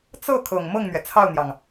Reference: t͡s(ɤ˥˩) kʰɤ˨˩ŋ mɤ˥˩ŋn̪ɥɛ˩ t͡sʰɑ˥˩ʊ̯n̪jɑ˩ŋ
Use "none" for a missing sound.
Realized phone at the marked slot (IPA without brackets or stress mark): ɤ˥˩